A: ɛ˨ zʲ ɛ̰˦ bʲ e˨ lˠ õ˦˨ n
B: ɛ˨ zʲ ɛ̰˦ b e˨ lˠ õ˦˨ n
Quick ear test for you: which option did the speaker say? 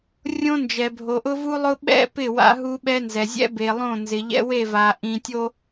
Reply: B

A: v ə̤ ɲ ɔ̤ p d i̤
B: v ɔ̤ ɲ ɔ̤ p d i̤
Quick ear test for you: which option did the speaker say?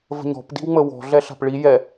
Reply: A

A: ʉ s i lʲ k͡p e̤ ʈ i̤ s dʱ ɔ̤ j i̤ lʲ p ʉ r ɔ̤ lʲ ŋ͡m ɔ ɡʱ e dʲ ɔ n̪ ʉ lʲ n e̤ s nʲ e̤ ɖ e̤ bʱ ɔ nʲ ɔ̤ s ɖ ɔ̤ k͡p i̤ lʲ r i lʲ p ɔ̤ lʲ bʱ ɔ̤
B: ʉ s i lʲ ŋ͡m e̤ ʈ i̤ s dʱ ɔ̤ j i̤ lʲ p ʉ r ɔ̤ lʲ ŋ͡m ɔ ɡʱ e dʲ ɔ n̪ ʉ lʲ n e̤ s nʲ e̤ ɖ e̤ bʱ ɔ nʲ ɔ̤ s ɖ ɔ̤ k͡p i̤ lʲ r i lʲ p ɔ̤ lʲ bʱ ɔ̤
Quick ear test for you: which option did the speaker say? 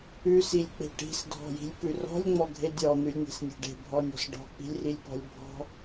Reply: A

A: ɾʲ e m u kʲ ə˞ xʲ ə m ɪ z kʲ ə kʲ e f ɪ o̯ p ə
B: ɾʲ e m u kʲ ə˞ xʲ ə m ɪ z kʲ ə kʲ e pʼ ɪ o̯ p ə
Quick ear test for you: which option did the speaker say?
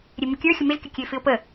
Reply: A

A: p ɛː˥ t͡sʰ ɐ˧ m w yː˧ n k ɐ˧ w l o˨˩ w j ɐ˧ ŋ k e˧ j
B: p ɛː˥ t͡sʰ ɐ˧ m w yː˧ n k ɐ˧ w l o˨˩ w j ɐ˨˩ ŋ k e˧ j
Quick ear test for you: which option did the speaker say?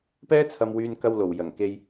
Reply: B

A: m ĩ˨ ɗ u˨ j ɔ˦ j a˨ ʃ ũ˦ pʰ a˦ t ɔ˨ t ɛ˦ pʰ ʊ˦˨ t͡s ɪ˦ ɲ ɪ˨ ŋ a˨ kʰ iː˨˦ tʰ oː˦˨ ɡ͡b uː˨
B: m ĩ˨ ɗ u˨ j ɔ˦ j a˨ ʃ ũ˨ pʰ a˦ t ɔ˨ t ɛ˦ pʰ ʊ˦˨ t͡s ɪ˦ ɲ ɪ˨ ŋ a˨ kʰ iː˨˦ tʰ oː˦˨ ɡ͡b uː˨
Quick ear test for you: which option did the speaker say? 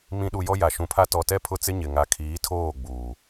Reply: B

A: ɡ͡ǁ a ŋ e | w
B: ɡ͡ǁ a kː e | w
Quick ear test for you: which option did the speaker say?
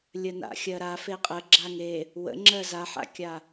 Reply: A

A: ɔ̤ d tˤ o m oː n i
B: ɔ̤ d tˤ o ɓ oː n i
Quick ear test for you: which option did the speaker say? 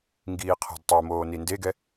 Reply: A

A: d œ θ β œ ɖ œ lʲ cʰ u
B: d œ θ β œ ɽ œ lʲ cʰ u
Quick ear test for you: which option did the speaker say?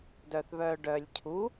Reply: A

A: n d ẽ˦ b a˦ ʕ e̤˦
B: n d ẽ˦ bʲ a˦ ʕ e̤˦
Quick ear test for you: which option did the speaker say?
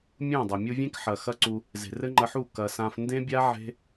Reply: B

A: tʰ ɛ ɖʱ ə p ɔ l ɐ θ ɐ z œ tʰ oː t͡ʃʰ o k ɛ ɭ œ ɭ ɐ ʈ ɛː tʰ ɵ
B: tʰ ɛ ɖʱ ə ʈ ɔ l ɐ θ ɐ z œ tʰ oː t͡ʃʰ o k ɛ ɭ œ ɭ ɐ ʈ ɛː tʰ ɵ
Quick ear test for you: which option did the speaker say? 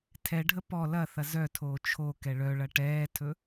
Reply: A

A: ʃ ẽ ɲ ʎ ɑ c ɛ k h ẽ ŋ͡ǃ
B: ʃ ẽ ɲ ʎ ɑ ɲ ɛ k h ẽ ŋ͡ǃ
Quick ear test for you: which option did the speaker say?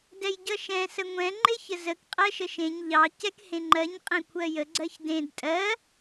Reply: A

